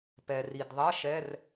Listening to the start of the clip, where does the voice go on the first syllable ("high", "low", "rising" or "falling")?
low